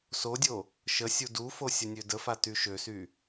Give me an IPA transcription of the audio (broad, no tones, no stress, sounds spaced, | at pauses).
s o dʲ o | ʃ ə sʲ u d u f o sʲ ə nʲ ø d ə f a t y ʃ ø s y